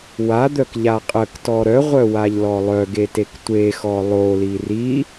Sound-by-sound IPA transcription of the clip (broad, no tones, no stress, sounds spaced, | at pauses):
w a d̪ œ k ʎ a qʼ ə k t ɔ ɾ œ ʁʷ œ w a ʎ l ɔ lˠ œ ɡ e t e k tʷ e x ɔ lˠ o l i r i